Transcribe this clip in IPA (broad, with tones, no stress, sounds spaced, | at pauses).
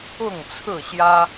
ʊ˥˨ ŋ t͡sʰ ɹ̩˥˨ ɕ j ä˦